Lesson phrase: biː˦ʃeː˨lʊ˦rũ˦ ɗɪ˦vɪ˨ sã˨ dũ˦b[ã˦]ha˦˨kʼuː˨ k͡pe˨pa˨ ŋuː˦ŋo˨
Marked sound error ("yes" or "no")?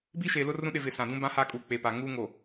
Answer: no